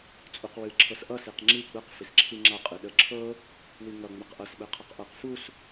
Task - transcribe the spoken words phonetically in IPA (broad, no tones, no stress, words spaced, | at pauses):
t͡sʼuqwɨ ǁʰɤsʔʌ siqŋ͡ǁi ɡ͡bəq fisǁʰiŋ͡ǁa qʼɨɗə ǁʰɤ | wiŋʌ ŋ͡mɘqʔʌs ɓɘqʰʌqʔɤq fus